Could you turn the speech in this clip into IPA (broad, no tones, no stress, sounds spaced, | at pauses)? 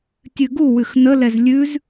tʲ ʉ ɡ u w ʉ x n ə l ɛ z lʲ ʉ z